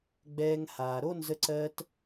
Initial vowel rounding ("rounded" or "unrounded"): unrounded